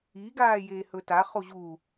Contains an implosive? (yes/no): no